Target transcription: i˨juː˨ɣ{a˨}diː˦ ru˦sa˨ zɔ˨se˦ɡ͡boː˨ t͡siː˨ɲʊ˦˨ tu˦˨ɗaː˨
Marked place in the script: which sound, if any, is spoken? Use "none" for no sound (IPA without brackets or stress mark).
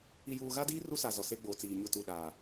a˦